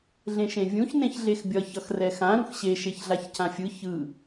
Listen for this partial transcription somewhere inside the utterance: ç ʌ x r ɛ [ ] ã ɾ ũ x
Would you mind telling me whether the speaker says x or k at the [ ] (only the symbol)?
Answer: x